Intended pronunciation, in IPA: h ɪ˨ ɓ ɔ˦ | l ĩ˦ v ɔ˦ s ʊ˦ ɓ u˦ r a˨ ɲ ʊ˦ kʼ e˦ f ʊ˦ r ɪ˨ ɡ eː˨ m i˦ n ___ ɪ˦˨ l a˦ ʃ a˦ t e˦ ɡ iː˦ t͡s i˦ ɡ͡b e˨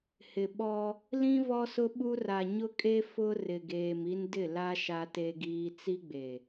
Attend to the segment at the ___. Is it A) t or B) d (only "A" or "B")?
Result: B